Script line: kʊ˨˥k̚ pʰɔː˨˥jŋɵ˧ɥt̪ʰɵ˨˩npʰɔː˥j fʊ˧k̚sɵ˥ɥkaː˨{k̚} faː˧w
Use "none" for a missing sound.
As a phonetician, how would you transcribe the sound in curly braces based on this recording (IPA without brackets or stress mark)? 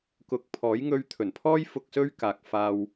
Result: k̚